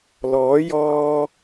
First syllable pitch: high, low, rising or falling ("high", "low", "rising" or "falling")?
rising